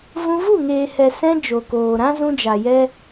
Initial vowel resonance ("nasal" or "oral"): nasal